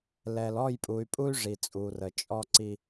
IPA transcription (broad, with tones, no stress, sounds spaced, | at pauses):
l ɛ˨ l ɔ˦˨ j pʼ u˨ y̯ pʼ u˦ y̯ ʐ i˨ t͡sʼ u˨ r ə˨ t͡ʃʼ ɔ˦ ǀ i˦